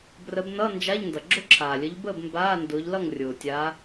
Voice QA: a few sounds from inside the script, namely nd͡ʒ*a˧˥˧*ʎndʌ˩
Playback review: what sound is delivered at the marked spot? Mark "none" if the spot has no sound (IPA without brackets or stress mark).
a˧˥˧